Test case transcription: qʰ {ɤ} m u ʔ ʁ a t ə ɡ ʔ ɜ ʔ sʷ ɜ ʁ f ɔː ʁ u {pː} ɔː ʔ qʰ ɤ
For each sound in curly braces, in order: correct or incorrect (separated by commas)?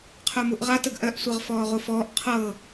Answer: incorrect, incorrect